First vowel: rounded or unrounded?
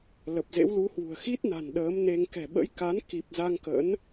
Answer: unrounded